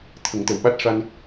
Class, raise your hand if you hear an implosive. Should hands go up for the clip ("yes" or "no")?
yes